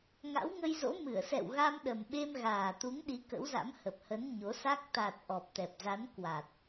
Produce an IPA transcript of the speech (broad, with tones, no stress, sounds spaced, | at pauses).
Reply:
ŋ a̰˧˥ w ŋ ə˧ j z o̰˧˥ m ɨ˧˩ ə̯ s ɛ̰˧˨ w ɣ a˧ m ɗ ə˨˩ m ɓ e˧ m ɣ aː˨˩ t̪ u˨˦ ŋ ɗ i˨˦ k ə̰˧˥ w z a̰˧˥ m h ə˨˩ p̚ h ə˨˦ n ɲ o˨˦ s a˦˥ k̚ t̪ a˨˩ t̚ ʔ ɔ˨˩ p̚ t̪ ɛ˨˩ p̚ z a˨˦ n k w a˨˩ t̚